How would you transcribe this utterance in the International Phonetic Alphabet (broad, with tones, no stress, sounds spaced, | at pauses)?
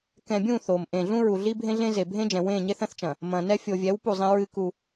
k ɛ̃˨ bʲ ũ˦˨ θ o˨ m ʔ ẽː˨ ɮ ũ˦ ɹ u˨ ɮ i˦ bʱ ẽ˦ ɮ ẽ˦ z e˨ bʱ ẽ˦ d͡ʒ ɛ̃˨ w ẽː˦˨ ɲ e˦ θ ɐ̃˦ θ t͡ʃ ɐ̃˨ | m ɐ̃ː˨ n ɛ˦ fʲ o˨ vʲ ɛ˨˦ w p u˦˨ zˤ ẽ˦ ɹ ɨ˦ k u˦